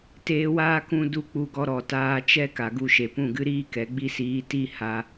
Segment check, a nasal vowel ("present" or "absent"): present